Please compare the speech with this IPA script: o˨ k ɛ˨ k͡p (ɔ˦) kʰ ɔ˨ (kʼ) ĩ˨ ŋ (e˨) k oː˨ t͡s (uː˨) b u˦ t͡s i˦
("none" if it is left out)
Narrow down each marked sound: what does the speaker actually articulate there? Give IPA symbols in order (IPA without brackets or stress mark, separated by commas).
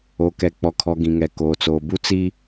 ɔ˨, ɡ, ɛ˨, oː˨